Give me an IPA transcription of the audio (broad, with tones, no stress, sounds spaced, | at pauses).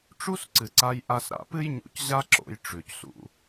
ʈ͡ʂ u˦ s ǀ ɨ˨ ǀ a˧ j ʔ a˧ s ɾ a̰˧ p ɨ˦ j ɲ ṵ˧ c ʑ a˦ ǁ o̰˧ j ʈ͡ʂ ʉ˨ c s ṵ˧